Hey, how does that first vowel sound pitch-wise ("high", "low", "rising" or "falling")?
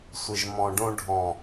low